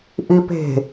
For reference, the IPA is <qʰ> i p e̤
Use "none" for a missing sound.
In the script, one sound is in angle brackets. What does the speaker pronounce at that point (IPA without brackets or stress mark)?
ʔ